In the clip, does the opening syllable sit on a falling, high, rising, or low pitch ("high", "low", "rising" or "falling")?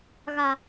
low